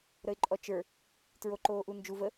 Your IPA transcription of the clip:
ɾəɪ̯ǃʼɔt͡ʃə˞ | tɹoǃoːʔund͡ʒu və

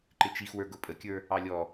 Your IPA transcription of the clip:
ǃɪt͡ʃix wə˞ɡʊpʼəkʲə˞ | ɑlʲɔ

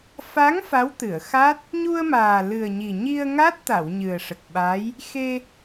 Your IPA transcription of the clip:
fa˧˥ŋ fa˧˥wt̪ɨ˨˩˨ə̯xa˦˥t̚ | ɲu˧ə̯maː˨˩lɨ˨˩ə̯ɲi˨˩ ɲi˧ə̯ŋa˦˥t̚t̪a˨˩˨w ɲɨ˨˩ə̯ʂə˨˩k̚ɓaː˧˥j | xe˧

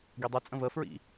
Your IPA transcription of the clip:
ɡidˤit͡sʼə̃ vəfɹḭ

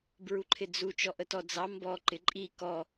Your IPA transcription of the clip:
bɹuǃʰɪd͡zu t͡ʃɔʔətɔd͡zɑ mbɔ ǃɪǃʼi kɔ

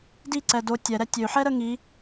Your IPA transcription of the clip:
diǀɛ do tʲɛɾɛ tʲøħɛɾə ŋi

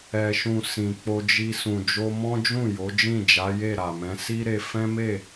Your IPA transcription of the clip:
ɛ˨ʃũ˨ sĩ˨k͡po˧d͡ʒi˧ sũ˨d͡ʒo˧mɔ̃˦d͡ʒũ˦˨ jo˨˦ d͡ʒĩ˦˨d͡ʒa˨˦je˦˨ ɾa˨mɛ̃˨˦ si˦ɾe˧ fɛ̃˦me˦˨

